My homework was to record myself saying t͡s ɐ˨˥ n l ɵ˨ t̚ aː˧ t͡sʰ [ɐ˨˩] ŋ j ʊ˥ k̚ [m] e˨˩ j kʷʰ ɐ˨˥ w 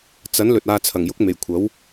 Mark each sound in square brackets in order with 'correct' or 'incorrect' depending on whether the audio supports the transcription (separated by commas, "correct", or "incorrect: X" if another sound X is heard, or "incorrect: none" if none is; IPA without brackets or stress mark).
correct, correct